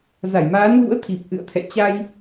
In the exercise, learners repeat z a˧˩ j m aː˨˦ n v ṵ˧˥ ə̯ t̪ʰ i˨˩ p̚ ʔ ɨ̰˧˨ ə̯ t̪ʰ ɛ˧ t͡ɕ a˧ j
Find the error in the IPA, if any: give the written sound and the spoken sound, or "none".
ɛ˧ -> ɛ̰˧˨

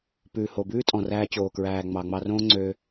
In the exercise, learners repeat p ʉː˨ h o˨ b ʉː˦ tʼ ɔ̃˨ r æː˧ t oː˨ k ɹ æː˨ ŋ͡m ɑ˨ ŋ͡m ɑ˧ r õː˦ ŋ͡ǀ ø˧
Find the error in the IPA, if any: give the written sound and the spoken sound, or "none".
t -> t͡ɕ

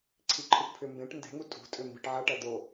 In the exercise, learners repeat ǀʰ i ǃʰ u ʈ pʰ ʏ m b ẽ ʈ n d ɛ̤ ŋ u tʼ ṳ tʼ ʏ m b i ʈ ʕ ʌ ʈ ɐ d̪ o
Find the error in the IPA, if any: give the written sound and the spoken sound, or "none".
none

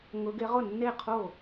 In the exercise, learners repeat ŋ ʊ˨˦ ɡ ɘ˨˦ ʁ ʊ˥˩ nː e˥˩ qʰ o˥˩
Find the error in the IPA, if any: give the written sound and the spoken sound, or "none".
ɘ˨˦ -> e˨˦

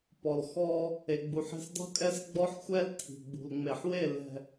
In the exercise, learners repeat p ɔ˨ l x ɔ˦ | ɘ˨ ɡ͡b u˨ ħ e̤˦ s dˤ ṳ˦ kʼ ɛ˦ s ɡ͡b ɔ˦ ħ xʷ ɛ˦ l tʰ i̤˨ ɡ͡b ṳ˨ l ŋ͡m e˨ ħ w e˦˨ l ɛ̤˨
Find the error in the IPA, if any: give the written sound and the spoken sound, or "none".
ɘ˨ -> e˨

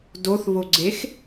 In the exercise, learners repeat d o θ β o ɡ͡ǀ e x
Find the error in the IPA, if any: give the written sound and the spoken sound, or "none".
none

